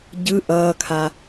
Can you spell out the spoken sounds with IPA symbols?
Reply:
ɟɯ ʔʌːkʰa

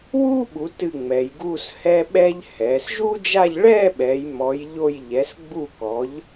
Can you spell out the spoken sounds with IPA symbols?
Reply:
wuː˥ɓu˩˧ tɨ˧˩ ŋ͡mɛ˩˧jɡuː˥˧s hɛ˧ ɓɛ˧ʎ hɛː˩˧sʒuː˥d͡ʒa˥˧ʎ ɭɛː˥˧ɓɛ˩˧j mɔ˩˧jʎo˧˩j ʎɛ˩˧sɡ͡bu˧˩kɔ˩˧ʎ

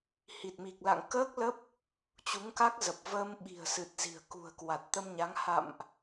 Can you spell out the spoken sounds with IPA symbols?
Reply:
hi˨˩t̚mi˨˩k̚la̰˧˨ŋ kəː˦˥k̚lə˦˥p̚ | t͡ɕu˨˦ŋka˦˥k̚zə˨˩p̚ vəː˧mɓi̤˨˩ə̯sɨ˨˩t̚ zi̤˨˩ə̯kṳ˨˩ə̯ kwa˨˩t̚t̪ə˧mɲa˨˦ŋ ha̰˧˨mʔ

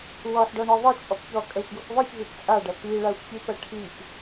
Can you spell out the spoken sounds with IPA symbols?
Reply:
wɔħɖɔɳɔ ðˤɘt͡ʃʼɔp çɔkʼɜxʷɡɯxʷ ðˤɯçvit t͡sʼaɖɐ piɭaxʷçipɐ ʈʰip

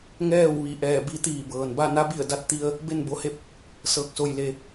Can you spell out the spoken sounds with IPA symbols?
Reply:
ŋɛː˥˨wʋi˧˩ ʔɛː˧˩bi˧t̪iː˧˩bɤː˩n ba˥˨na˧˥bi˧˩ə̯ da˧t̚t̪i˧ə̯ | be˥˨nbo˧he˥˨p̚ | sɤː˧k̚so˧jle˧

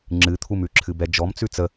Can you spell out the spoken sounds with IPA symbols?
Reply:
ŋ͡ǁɨt̪ʰumʉ ǁʰɨbɛd͡ʒɔm t͡sʉt͡sə

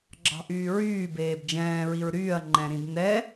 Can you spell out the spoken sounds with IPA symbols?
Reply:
ɡ͡ǁɑ̤ʔyːɹyː beːbd͡ʒɛ̃ː ɹiɹɾyːɐ̯ ŋ͡ǃɛ̃ɾĩdnɛ

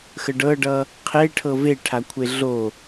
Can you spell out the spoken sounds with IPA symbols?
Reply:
xəɖɤɖʌ | qʰeʈʰɤ veʈʰakʷʰe ɮo

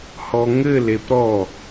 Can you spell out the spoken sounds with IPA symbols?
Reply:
hɔŋɘl epɾɔ

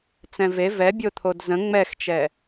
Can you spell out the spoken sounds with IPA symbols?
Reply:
t͡sɛ̃ve vɛbʲot̪ʰod zə̃ ŋ͡mɛxt͡ʃɛ

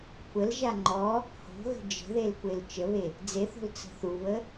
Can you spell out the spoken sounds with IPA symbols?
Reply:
kʷʰəlʒa ŋ͡ǃɔ | ho̤ɣə̤ d͡ʒə̤ðel kʷelt͡ʃəβe | d͡zeθo̤l t͡sə̤θuβə

